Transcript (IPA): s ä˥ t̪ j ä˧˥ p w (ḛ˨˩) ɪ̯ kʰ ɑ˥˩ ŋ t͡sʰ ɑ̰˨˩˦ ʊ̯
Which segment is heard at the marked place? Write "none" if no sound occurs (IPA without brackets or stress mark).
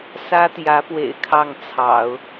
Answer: ḛ˨˩